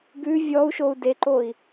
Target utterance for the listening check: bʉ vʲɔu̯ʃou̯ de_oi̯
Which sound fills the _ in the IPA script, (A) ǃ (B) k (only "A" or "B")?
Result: A